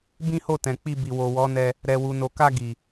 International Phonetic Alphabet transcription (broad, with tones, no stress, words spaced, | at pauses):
bĩ˦ho˦˨tɛ̃˨k͡pi˧ bi˨wo˨wɔ˨˦nɛ˧ | ɾɛ˨wu˨no˨ka˧ ɡi˨